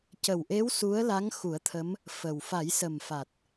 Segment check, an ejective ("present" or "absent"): absent